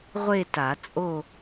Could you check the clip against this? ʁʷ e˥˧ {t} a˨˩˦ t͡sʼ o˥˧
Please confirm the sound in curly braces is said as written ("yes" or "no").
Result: yes